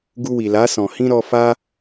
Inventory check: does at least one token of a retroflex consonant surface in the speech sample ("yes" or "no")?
no